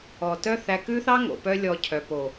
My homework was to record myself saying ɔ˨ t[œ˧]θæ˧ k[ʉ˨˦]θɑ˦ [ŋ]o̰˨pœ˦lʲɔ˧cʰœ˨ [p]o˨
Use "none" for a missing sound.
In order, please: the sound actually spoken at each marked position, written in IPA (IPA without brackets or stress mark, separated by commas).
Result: œ˦, ʉ˦, ŋ, p